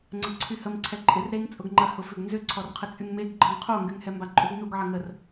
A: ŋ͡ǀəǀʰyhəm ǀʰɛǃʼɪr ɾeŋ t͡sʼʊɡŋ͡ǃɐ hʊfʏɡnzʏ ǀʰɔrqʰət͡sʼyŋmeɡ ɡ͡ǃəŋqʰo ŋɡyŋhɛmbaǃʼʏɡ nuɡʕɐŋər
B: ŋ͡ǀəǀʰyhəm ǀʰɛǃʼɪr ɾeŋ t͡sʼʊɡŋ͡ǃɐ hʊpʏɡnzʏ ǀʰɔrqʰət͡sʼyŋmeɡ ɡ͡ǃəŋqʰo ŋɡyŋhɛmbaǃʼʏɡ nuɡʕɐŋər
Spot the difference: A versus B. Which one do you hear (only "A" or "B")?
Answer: A